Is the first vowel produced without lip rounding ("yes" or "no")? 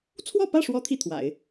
no